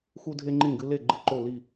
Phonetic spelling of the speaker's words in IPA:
xu˥dʱe˥ŋ͡ǃĩ˥˨ɡɨ˥ le˥˨ ɡ͡ǃɨ˥ǃo˥˨ li˥˨

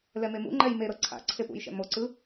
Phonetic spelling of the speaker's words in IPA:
lɛmemṵŋ͡ǃɛj meɾɤ ǀʰa̰ ǀʰepṵjʃɛ̰ moǀɯ

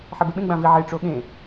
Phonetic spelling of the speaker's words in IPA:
ħɛbeɓẽ ɡ͡bãvi ʕe ʈ͡ʂoɠẽ

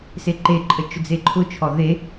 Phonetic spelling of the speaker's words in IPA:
seǃeǃʼə t͡ʃʊd͡zeǃʰʊt͡ʃʰɔ ðe

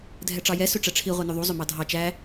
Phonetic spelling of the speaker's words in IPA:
dʱɛʈ͡ʂɑjɛ søʈ͡ʂɛʈ͡ʂʰi ʁʷɛnɵðˤu zˤømɑdʱɑ t͡ʃæ

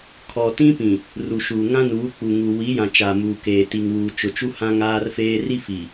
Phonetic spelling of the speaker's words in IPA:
kʰɔ˨tĩ˦pĩ˨ | ru˨ʃuː˨ ŋã˦nuː˨˦ k͡pu˨ŋu˨ wi˨˦jã˨ t͡ʃaː˨muː˨keː˨ ti˨ŋwuː˨t͡ʃʊ˨t͡ʃu˦ hã˦ŋaː˦rfeː˦ ri˦fi˨

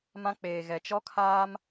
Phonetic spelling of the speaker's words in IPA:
mã˦ k͡peː˨ɣɛ˨ t͡ʃɔ˦kʰaː˦m

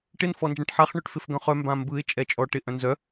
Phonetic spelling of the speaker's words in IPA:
ʈɪn fɔnd͡ʒãʈħaχ ɳɵʈfɪfɡœ̃χœ mbãmbɯɪ̯ t͡ʃʼɛt͡ʃʼɔ ʈɪʔ œ̃nzœ

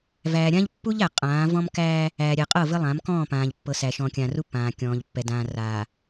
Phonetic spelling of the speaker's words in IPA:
væː˨ɾʲã˦ʎ pːu˦ʎ æ˨qʼãː˨˦ vɔ̃˦mkæː˦ | æː˨ɾʲɛ˨qʼɤ˦˨ vɘ˦lˠã˨˦mkɔ̃ː˦˨pãː˨ʎ pːɤ˨sæ˨ʃɔ̃˨kʲãː˨r u˦pːãː˨kʲɔ̃ː˨ʎpːɛ˨ dãː˨raː˨

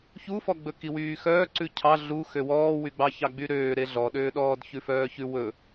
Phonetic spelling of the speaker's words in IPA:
çufɔɡ͡bɵ kiwyːxœː ǀʉcʰɑ ɮu xøwɔːwyɡ͡bɑ çɑɡ͡byɾøː ɾeɮɔɗøːɗɔːd çʉfœːçʉ wɵ

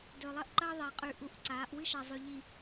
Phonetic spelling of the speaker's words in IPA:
dɵ˨ lˠɐ˦ʔǃɐː˦ðˤa˨ qʼʉ˨ʔu˨ʔ ǀaː˨˦ʔ wɨ˦ʃa˨ zˤʉ˨ʎi˨

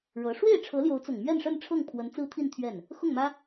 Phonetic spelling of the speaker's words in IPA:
ɻɤ˧˥ ʂwe˥˩ɪ̯ʈ͡ʂʰɤ˧˥ljo˧˥ʊ̯t͡sʊ˨˩ŋ mɥɛ˥˧nʂə˥˧n ʈ͡ʂʰɤ˥˩ŋpʰwə˧˥nt͡sɹ̩˥t̪ʰi˥˧n t̪ʰɥɛ˥˩n | xʊ˥˩ŋmä˥

